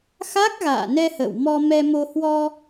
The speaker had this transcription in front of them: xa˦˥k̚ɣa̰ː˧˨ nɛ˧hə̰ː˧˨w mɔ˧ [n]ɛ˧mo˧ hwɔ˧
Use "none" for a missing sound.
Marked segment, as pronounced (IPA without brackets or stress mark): m